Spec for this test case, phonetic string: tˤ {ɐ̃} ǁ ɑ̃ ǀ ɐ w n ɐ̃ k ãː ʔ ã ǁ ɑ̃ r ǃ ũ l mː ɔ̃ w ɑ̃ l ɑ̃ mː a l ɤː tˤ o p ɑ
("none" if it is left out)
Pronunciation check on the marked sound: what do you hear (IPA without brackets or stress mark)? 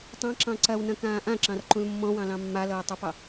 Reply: ɑ̃